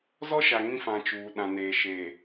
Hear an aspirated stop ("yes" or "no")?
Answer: no